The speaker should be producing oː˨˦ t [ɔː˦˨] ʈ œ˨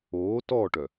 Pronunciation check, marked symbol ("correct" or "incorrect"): correct